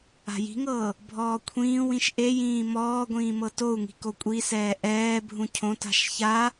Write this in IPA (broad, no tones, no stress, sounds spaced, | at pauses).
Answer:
a̤ j i̤ ŋ ɤː | bʱ ɔː kʷʰ ĩː w ĩ ʃ ʔ e j ĩː m ɔː ɡʷ ĩː m ɤ t o u̯ ŋ i̤ k o kʷʼ i s ɛː ʔ ɛː bʱ ũ cʰ õ t a̤ ʃ ç a